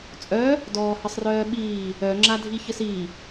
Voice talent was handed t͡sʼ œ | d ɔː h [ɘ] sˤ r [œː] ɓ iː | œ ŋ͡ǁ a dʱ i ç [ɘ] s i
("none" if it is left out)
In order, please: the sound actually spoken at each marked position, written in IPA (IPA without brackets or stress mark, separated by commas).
ɘ, œː, ɘ